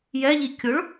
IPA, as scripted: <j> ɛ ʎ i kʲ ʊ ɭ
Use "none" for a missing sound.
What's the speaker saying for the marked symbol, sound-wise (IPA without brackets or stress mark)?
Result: j